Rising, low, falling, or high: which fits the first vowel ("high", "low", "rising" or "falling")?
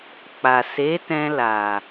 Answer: low